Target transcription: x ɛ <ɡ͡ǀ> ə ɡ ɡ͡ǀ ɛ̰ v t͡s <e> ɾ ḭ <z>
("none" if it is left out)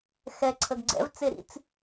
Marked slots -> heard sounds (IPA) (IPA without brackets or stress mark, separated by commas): ǀʰ, e, t͡s